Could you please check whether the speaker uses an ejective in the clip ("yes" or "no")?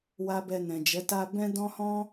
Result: no